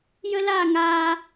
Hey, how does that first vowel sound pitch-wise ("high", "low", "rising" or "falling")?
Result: high